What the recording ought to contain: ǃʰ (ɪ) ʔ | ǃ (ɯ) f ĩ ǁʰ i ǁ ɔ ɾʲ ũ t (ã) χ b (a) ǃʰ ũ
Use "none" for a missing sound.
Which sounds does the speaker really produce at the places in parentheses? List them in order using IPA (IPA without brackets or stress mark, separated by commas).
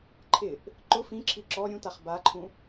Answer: ɪ, ʊ, a, a